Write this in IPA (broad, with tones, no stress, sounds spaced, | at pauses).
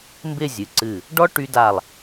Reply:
m b ɪ˥˧ zʲ ɨ˩˧ ǀ ɨ˧˩ | ɖ ɔ˥ ʈ y˧ d a˧˩ lˠ